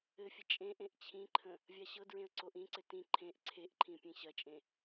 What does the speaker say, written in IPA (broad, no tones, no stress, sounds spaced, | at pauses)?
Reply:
ɘ fʲ ə t͡ʃʼ ẽ ʔ ẽ ʔ t͡ɕʰ ĩ ǃʰ ə̃ | vʲ a ɕ ɤ d ɹ ẽ ə̯ ǀ o ʔ ĩ ǀ ɘ t ĩ ǃʰ ẽ ʔ ǀʰ e ʔ ǃʰ ĩ pʲ ẽ ɕ ɐ t͡ʃʼ ẽ